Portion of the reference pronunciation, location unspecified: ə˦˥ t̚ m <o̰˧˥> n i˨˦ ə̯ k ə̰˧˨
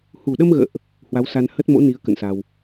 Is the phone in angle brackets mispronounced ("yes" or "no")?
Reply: no